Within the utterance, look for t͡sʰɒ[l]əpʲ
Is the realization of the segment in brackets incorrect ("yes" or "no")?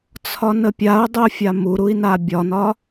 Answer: yes